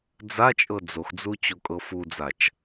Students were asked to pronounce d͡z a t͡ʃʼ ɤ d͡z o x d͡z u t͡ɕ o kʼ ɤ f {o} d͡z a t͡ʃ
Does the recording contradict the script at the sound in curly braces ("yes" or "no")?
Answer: yes